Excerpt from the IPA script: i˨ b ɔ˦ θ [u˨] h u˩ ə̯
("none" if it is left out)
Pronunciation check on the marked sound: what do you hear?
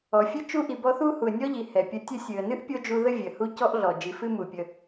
u˥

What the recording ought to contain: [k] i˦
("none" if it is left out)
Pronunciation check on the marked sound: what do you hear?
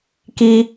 k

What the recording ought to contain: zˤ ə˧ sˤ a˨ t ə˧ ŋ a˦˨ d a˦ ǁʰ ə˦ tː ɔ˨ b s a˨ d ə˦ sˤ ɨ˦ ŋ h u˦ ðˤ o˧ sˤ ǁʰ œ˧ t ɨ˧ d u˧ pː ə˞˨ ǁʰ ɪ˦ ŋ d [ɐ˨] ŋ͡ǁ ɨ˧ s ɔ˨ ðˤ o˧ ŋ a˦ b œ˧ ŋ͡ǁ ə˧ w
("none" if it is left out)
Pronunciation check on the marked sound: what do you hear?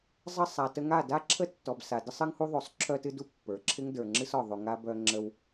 ə˞˨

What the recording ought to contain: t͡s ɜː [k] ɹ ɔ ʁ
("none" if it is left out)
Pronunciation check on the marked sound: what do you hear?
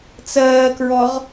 k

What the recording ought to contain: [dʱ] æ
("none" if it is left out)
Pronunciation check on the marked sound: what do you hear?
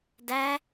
d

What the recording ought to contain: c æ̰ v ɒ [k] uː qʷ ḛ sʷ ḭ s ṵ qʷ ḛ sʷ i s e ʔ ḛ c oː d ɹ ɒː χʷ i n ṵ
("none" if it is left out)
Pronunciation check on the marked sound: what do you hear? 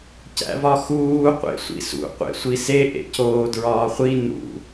x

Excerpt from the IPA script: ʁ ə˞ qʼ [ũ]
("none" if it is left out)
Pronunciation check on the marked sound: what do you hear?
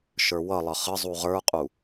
u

